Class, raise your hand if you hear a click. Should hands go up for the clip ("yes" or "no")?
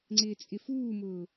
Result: yes